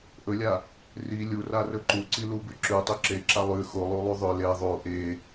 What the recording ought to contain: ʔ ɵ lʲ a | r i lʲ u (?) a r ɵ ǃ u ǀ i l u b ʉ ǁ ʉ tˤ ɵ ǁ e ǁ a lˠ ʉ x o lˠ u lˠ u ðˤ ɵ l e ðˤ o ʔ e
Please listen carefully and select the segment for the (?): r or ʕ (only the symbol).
r